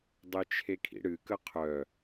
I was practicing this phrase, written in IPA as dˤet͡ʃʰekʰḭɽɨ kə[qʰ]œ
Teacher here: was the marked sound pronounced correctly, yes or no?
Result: yes